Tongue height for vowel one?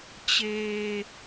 mid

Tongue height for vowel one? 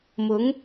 high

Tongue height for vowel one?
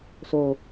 mid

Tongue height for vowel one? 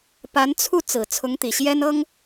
low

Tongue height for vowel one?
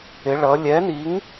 high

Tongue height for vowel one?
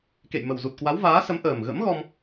mid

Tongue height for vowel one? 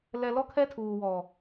mid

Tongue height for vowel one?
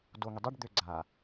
mid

